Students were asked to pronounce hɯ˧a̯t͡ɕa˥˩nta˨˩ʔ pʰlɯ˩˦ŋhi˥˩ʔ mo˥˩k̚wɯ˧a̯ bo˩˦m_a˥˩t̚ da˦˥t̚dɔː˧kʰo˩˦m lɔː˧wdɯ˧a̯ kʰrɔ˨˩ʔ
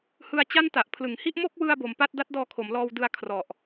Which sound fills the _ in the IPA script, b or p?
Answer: p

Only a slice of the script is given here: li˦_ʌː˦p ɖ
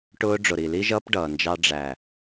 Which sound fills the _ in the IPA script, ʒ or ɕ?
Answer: ʒ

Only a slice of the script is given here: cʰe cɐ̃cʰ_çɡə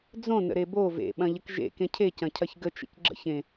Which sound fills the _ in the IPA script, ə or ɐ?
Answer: ɐ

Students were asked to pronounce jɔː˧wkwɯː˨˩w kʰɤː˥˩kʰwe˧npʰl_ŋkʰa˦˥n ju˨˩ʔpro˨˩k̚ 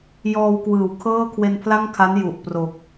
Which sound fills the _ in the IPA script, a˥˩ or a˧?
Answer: a˥˩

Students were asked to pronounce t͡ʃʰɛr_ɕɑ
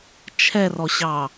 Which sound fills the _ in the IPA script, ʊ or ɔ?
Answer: ɔ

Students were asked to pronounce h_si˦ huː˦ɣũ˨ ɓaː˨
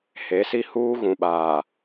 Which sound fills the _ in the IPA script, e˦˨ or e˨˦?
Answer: e˨˦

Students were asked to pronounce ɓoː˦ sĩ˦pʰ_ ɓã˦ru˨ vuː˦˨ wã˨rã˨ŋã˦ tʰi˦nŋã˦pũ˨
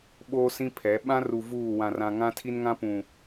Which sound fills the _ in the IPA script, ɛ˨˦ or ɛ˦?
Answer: ɛ˨˦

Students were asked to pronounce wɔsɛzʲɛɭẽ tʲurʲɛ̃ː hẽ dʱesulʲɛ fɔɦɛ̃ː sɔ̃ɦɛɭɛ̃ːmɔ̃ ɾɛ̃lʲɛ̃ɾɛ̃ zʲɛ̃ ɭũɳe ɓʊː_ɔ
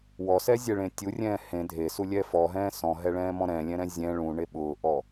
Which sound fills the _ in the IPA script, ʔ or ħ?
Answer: ʔ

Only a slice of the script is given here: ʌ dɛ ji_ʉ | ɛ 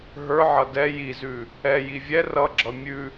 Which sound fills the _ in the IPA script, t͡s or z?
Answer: z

